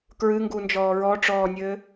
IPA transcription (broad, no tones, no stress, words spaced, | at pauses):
kɹɨŋɡund͡ʒɔː ɹɔʈ͡ʂɔːnʲɘː